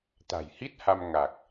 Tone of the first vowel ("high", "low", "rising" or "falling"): low